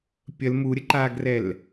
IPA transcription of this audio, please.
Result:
pʲ ə l m u ɾʲ ə ǃ aː ɡ r ɛ l

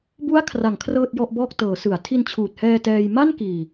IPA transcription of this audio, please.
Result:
b u˦˥ a̯ kʰ r a˩˦ ŋ kʰ r ɤː˥˩ t̚ j ɔ˥˩ ʔ b ɔː˥˩ k̚ t ɤː˩˦ s ɯ˩˦ a̯ tʰ i˧ n t͡ɕʰ uː˨˩ t̚ h ɛː˧ t ɛː˧ j m a˥˩ n k iː˨˩

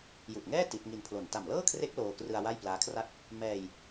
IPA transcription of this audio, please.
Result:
j u˨˩ ʔ ŋ ɛː˥˩ t i˦˥ t̚ ŋ i˧ n pʰ l o˨˩ n t a˨˩ m l ɤː˥˩ kʰ r e˦˥ k̚ l oː˧ k r ɯ˧ a̯ w a˥˩ j p l aː˦˥ kʰ r a˥˩ t̚ | m ɛː˧ j

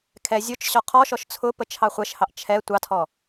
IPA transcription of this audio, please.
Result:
kʰ ɛ zʲ ʊ t͡ʃ ɕ ɔ qʰ ɔ ʃ ɔ ʃ t͡sʰ ʊ p ə t͡ʃʰ ɑ χʷ ɛ ʃ h ɑ ʔ t͡ʃʰ ɛ tʷ ɑ tʰ ɔ

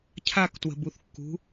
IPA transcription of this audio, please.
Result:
cʰ a k t w ə̤ b u θ kː ṳ

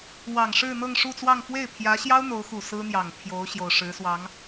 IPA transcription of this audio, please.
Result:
w ɑ˨˩ ŋ ʂ ɻ̩˥˧ n̪ ɤ˥˧ ŋ ʂ u˥˧ t͡s w ɑ˥˧ ŋ f w e˥˩ ɪ̯ pʰ j ä˧˥ ɕ j ɑ˥ ʊ̯ n̪ o˧˥ ʊ̯ x u˨˩ s ɹ̩˥ n̪ j ɑ˨˩ ŋ t̪ʰ j o˧˥ ʊ̯ ɕ j o˨˩ ʊ̯ ʂ ɻ̩˧˥ s w ɑ˧˥ ŋ

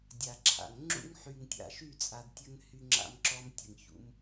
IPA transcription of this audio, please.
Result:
dʲ a˨ ǁʰ a̰˨ ŋ ŋ͡ǁ ṵ˦ ŋ ħ y˨ ŋ tʲ a̰˨ ʃ y˦˨ t͡sʼ a˨ d tʲ ə˦ ŋ h y˦ ŋ͡ǁ a̰˦ m ǁ ɔ˦ m tʲ ə˨ ŋ ç ṵ˦ m

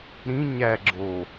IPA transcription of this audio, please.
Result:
ɾ ĩ ɲ æ ɡ͡ǁ o

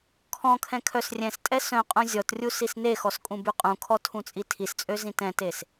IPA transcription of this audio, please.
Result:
kʰ ɔ̃ kʰ ɛ̃ kʰ œ s rʲ ɛ̃ s tʼ ɛ s œ̃ qʼ ũ zʲ ɔ t rʲ u s i s n e x ɔ s kʼ ũ b y qʼ ũ kʰ ɔ tʰ ũ t͡sʼ i tʰ i s t͡sʼ ø z ĩ t ɛ̃ t e s

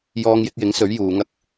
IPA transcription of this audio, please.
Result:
j ɔː˧ ŋ j ɪ˧ k̚ j ɪ˨˥ ŋ s ɵ˨˥ ɥ j uː˨˧ ŋ ɐ˥ k̚

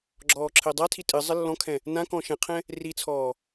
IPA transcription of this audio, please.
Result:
ɡ͡ǁ ɔː ǁʰ ɘː dˤ a tʰ i tʼ ɨ zˤ ɘ lː ɔ̃ kʰ ɛ̃ | n ã k ɔ̃ ʃ ɛ̃ qʰ ɛ̃ | r i t͡sʰ ɔː

